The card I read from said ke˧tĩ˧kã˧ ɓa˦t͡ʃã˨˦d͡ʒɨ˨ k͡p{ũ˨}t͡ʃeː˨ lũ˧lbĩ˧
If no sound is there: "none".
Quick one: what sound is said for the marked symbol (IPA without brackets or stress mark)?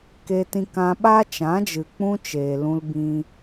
ũ˦